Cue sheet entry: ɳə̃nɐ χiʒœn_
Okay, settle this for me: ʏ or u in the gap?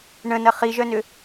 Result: ʏ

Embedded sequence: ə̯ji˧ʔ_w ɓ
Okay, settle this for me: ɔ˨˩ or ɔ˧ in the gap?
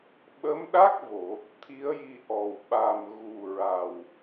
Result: ɔ˨˩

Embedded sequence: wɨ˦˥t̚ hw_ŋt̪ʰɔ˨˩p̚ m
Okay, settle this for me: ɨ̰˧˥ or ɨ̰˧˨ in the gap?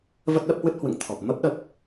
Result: ɨ̰˧˨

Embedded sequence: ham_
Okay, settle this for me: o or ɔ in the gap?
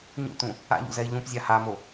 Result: o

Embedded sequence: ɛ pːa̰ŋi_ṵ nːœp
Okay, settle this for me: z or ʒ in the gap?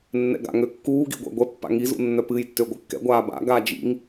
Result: z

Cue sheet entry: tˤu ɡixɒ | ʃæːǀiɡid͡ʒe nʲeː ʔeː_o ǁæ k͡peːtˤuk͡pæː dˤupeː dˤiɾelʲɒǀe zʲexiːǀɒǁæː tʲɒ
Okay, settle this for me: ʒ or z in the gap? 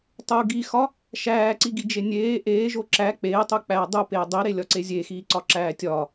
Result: ʒ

